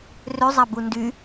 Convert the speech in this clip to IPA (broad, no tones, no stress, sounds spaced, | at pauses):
r ø zˤ a b u n d y